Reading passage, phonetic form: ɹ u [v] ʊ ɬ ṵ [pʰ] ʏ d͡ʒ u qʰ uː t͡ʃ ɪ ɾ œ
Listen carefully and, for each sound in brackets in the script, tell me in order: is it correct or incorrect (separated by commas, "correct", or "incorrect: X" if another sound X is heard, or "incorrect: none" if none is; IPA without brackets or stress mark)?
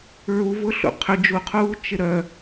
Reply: correct, incorrect: qʰ